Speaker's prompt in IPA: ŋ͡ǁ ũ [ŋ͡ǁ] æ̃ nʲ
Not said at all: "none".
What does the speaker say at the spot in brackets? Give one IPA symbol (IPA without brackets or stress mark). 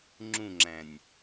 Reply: ŋ͡ǁ